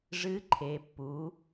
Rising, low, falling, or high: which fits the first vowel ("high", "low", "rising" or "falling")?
rising